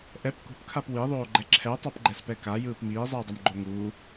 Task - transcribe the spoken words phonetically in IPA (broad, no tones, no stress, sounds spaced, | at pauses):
ʔ ɛ p k ṳ p kʰ a p w i ðˤ oː ɡ͡ǃ ɛ ǁʰ ɛ tˤ a p ɡ͡ǃ ɛ s p ɛ k a j ɯː p m iː zˤ ɯː dˤ ʌ m ɡ͡ǃ o ŋ uː